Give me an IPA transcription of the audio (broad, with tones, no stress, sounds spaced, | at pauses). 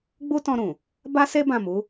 ɡ͡b u˦ t ɔ̃˧ ɾ ũ˨ | b a˦ s e˦ b ã˦˨ m u˨˦